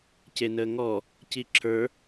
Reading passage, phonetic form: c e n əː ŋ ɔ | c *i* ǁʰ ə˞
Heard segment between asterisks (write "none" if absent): i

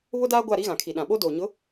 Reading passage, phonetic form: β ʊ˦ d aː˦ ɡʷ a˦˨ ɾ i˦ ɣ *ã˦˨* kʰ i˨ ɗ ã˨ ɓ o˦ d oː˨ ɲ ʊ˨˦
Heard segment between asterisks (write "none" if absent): ã˨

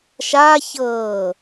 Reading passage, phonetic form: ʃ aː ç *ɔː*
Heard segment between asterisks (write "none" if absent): ɤː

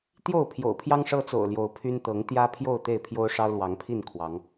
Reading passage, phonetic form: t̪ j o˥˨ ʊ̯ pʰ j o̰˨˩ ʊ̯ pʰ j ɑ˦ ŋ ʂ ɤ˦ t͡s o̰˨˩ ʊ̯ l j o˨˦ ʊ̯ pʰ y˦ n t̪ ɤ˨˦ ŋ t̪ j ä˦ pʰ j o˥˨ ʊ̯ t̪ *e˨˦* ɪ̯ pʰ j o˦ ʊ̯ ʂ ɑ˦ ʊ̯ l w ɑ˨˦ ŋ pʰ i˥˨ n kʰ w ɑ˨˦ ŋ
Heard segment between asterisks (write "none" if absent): e˥˨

